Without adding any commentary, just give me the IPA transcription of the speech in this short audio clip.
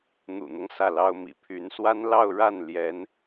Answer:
n̪ ṵ˨˩ n̪ ɤ˦ ŋ s ä˥˩ l ɑ˥ ʊ̯ m ḭ˨˩ pʰ y˧˥ n s w a˥ n l ɑ˥˧ ʊ̯ ɻ a˥˩ n l j ɛ˧˥ n

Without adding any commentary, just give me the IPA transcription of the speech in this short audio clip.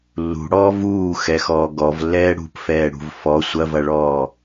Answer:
lː ṳ ɽ ɔː v uː x ɛ x ɔː ɡ ɔ v lː ɛː ɽ ṳ p f ɛː ɽ ṳ v f ɔ sʷ ɐ v ɐ ɭ ɔː

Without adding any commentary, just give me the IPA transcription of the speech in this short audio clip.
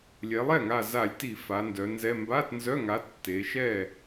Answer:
lʲ ɛ˩˧ lˠ ɛ˥˩ ŋ a˧˩ z a˧˩˧ lʲ t i˧˩˧ f a˩˧ n d œ˩˧ n z ɛ˧˥˧ m b a˧˥˧ t n z œ˧˥˧ ŋ a˨˥ tː e˩˧ ʃ ɛ˥˩

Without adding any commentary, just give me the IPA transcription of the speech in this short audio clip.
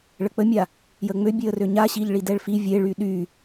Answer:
ɭ ə k͡p ə mʲ a | j ə ŋ͡m ø bʲ e ə̯ r ø ɲ a ɕ i ʎ ɭ i d ɛ ɭ f i vʲ e ɭ y ɗ y

